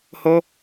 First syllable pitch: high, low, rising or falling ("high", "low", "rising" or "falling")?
high